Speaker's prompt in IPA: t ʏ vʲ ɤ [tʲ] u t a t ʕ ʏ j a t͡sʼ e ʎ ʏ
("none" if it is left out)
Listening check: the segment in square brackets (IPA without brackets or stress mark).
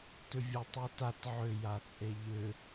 tˤ